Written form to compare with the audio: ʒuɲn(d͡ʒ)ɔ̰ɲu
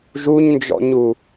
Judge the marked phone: correct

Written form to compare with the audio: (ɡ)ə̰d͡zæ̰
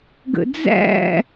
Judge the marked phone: correct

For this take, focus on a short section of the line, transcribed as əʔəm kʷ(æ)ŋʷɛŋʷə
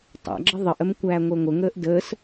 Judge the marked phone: incorrect: æː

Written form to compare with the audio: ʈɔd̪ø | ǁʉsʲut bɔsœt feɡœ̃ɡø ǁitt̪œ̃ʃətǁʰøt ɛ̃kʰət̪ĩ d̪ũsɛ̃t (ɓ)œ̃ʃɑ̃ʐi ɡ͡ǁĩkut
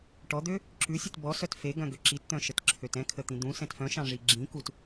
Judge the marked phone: incorrect: f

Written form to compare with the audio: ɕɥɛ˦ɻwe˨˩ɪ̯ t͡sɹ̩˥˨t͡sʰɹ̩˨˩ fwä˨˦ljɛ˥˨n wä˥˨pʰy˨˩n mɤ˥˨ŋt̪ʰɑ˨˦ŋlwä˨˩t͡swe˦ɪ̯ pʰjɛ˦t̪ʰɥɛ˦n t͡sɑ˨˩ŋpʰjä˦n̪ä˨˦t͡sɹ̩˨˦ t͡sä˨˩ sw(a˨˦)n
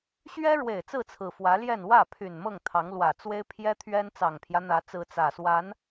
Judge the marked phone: correct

